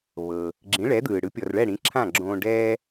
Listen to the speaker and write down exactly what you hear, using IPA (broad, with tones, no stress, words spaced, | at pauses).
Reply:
βɤ˩ | ɡ͡ǁĩ˩˥ɭɛ˩˥d̪ɯː˩ɽɯ˩˥ pʲɔ˩rɭɛ˥˩ɽĩ˩˥ ǁʰã˥˩ɡ͡ǁõː˧ ɖɛː˥